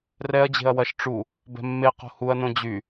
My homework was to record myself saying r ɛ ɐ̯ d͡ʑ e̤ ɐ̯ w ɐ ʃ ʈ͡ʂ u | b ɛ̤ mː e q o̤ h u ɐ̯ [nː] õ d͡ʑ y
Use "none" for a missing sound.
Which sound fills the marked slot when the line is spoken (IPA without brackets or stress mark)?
n